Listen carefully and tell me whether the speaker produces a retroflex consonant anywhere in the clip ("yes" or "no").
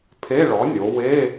yes